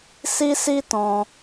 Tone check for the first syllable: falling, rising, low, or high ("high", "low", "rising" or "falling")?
high